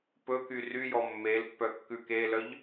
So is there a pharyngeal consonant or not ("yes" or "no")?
no